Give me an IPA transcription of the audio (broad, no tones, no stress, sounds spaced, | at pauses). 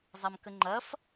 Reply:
zˤ a m k ə ŋ͡ǃ ɐ f